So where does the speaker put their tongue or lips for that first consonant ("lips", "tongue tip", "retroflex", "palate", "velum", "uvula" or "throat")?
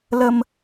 tongue tip